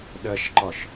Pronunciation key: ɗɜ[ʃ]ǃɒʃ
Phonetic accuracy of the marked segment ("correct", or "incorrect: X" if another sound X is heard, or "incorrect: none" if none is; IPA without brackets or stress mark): correct